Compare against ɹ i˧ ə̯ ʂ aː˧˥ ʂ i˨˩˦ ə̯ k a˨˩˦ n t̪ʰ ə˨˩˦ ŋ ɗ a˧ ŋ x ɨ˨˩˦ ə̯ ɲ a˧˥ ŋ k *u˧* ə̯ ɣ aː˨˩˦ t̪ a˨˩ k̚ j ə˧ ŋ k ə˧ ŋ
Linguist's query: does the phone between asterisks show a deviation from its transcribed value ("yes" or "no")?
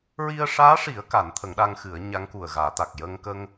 yes